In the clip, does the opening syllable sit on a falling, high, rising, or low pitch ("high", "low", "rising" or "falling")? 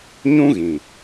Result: high